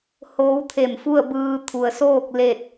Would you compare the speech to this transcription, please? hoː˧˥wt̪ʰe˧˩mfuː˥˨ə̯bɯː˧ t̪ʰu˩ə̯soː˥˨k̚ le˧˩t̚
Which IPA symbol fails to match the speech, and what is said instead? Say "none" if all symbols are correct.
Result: uː˥˨ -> u˥˨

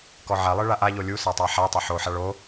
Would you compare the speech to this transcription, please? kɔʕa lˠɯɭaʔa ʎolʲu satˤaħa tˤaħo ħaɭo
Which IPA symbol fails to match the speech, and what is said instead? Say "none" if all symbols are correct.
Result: none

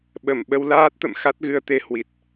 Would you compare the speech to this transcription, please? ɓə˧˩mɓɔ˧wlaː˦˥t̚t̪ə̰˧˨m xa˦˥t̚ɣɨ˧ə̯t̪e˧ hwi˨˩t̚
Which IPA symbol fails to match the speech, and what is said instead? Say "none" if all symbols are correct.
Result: ɔ˧ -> ə˧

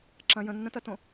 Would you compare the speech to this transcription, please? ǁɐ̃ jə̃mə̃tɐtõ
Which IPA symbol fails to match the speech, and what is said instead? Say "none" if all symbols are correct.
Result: m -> nː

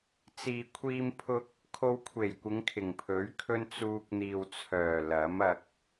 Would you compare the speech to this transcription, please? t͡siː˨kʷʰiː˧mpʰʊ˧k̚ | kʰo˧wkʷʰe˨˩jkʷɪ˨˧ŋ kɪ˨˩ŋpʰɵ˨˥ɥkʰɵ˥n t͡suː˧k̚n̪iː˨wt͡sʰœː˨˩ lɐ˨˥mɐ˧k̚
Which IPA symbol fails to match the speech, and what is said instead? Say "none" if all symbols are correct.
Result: k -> kʰ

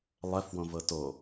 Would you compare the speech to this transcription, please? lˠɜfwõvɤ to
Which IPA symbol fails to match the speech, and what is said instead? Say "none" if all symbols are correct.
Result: none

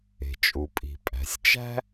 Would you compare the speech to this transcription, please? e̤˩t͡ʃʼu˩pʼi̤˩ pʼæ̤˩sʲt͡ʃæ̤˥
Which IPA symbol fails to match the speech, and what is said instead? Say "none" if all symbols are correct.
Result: none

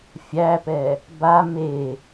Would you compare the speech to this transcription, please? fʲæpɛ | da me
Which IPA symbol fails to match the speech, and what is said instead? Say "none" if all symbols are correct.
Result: d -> b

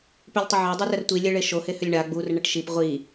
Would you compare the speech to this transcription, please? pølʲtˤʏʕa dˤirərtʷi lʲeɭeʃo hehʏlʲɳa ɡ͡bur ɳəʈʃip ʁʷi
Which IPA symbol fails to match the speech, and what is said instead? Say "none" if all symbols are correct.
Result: none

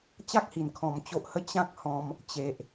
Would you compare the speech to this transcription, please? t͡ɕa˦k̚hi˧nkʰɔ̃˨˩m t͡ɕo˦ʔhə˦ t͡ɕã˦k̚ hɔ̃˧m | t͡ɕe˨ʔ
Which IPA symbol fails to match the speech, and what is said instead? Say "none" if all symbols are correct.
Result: i˧ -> i˨˩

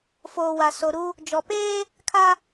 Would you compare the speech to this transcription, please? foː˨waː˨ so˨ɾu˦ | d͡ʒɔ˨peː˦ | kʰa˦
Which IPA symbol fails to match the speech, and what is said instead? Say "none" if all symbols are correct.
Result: aː˨ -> a˨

